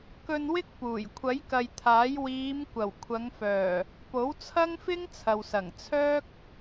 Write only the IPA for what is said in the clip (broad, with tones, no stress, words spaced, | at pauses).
kɵ˧n wɪ˥k̚ puː˨˩j kʷʰɐ˨˥jkɐ˨jt̪ʰaː˨˥j wiː˨˧m kʷɐ˨˩wkʷʰɐ˨˧ŋfœː˨˩ | po˨˥wt͡sʰɐ˥ŋfɪ˥ŋ t͡sʰɐ˨wsɐ˨˩ŋ t͡sʰœː˥k̚